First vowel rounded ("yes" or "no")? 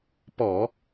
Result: yes